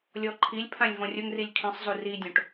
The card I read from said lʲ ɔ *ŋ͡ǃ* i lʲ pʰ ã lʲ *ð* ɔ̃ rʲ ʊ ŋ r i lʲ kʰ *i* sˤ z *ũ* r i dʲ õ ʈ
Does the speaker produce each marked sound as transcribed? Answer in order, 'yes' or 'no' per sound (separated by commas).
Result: no, no, no, no